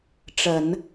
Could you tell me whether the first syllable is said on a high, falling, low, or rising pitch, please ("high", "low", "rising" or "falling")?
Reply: low